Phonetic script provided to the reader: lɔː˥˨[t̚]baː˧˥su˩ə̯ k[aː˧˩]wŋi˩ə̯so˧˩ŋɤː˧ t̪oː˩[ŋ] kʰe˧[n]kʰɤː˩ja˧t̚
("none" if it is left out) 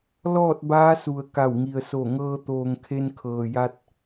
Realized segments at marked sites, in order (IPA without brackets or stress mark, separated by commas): t̚, a˧˩, ŋ, n